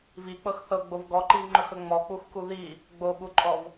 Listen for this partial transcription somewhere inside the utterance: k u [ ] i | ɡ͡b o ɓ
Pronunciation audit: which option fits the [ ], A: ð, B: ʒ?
A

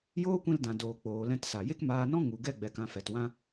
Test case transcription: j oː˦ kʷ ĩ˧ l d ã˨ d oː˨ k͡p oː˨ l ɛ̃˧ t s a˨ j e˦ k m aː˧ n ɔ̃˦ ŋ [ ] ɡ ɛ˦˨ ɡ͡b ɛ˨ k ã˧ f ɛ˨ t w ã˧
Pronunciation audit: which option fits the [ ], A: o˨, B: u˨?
B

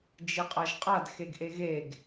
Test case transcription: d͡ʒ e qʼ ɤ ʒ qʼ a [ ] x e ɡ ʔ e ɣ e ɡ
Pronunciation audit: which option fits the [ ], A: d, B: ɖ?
A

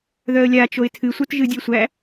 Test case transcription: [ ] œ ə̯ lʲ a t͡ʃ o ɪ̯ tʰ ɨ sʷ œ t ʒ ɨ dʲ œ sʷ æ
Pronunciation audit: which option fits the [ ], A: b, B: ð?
B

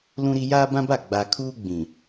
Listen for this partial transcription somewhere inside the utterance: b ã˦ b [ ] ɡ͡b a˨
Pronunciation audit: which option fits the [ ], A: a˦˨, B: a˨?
A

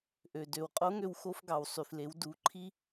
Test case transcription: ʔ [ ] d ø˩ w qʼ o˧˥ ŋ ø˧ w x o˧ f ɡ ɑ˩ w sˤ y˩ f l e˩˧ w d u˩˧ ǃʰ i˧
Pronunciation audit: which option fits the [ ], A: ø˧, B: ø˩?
B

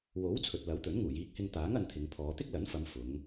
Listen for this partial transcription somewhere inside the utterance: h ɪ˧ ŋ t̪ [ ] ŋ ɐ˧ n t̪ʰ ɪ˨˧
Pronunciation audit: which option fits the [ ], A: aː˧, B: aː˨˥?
B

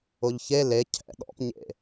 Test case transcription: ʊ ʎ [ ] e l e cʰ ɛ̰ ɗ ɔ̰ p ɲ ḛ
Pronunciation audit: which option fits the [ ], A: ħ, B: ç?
B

